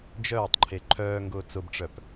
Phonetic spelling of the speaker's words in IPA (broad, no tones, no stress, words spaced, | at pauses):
d͡ʒœːtˤǃʰe ǃʰœːŋɡʊː t͡sʊbʈ͡ʂœp